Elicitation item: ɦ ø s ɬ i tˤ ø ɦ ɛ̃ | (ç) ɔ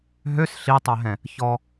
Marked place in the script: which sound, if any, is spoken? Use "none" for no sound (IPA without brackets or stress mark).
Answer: ç